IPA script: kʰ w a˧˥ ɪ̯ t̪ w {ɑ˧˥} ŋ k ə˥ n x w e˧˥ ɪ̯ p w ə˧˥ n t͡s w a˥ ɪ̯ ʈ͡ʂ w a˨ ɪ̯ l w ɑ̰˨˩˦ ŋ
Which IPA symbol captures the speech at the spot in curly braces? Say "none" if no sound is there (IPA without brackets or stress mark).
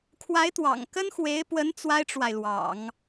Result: ɑ̰˨˩